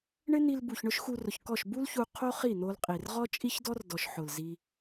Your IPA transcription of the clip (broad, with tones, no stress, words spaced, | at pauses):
ɳɪ˦n̪i˧lbu˨ç ɳʊ˦ʃxu˧rʊ˨çkɔ˦˨ʃ bu˦lçu˧ qʰo˦χi˦˨n̪o˧lqʼi˨r ʁɔ˦t͡ʃʼi˦çdɔ˦r dɔ˨ʃ ħʊ˨lzi˧